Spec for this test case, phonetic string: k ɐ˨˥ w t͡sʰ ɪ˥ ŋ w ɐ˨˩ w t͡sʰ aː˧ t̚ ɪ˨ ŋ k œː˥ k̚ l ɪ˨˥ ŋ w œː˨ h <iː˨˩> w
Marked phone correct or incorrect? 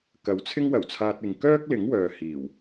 correct